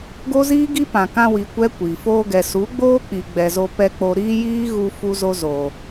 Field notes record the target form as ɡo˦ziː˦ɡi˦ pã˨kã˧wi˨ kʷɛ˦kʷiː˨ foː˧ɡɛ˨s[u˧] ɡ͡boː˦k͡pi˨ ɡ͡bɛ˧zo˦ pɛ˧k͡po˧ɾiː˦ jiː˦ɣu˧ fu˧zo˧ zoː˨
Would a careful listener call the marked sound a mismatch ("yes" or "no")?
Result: yes